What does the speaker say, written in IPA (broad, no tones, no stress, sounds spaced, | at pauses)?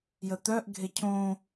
j ə t̪ œ ʔ ɡʱ e cʰ õ